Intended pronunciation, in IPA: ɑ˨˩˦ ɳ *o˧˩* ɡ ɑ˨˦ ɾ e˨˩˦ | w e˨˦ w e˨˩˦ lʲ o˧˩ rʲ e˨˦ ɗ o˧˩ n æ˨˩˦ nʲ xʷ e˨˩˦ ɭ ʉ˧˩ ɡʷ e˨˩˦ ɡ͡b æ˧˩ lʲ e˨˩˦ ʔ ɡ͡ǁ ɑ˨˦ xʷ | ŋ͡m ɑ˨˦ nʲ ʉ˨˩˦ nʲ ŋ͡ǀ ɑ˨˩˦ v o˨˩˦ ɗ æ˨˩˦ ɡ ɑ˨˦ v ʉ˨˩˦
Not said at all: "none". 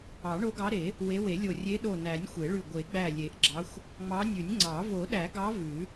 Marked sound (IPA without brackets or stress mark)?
o˨˦